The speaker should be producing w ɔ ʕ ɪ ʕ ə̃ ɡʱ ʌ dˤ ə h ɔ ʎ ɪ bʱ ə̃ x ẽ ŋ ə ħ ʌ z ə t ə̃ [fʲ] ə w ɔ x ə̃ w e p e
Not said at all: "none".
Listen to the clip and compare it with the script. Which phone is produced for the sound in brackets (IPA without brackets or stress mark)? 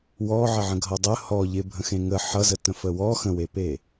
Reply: f